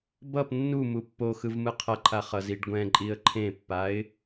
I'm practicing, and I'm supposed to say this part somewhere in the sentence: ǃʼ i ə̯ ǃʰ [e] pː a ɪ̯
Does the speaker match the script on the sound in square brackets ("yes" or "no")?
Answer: no